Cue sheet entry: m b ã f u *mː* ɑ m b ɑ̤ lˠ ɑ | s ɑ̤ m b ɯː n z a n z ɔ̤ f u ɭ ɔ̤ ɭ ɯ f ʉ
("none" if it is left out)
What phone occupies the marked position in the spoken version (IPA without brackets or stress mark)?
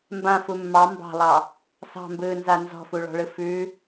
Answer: mː